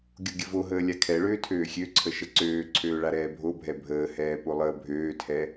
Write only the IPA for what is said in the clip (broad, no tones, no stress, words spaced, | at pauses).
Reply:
ɡʲoɡʲəvoɦəː lʲakʰɛɭøː tʰøːxʲøǀʰə ʃəǀøːǀʰøː ɭaɾɛːbʱobʱɛ bʱəːhɛː polˠəːbʱøːtʰɛ